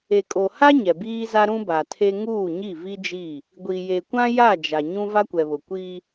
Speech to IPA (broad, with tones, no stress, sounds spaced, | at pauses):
e˨ kʼ o˨ h a˦ ɲ ɛ˨ b iː˦ z a˦ ɾ ũ˦ b a˨ tʰ e˦ ŋ uː˦˨ ɲ i˦˨ v i˦ d͡ʒ i˦˨ | ɡʷ i˨ j e˨ kʷ ã˦ j a˦˨ d͡ʒ a˨ ɲ ũ˦ v a˦ kʷ ɛ˨ β ʊ˨ kʷ i˦